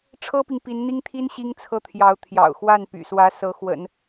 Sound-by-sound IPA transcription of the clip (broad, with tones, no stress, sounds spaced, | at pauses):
ʈ͡ʂʰ ɤ˥ p i˨ ŋ p i˧˥ n n̪ i˥ ŋ t̪ʰ i˥ n ɕ i˥ ŋ t͡sʰ ɤ˥˩ t̪ʰ j ɑ˧˥ ʊ̯ t̪ʰ j ɑ̰˨˩ ʊ̯ x w a˥˩ n p y̰˨˩ s w ä˧˥ s ɤ˧˥ x w ə̰˨˩˦ n